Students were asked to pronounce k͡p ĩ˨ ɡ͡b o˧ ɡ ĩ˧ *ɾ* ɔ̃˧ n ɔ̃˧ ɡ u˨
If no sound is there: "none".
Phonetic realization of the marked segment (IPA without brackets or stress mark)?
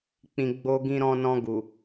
ɾ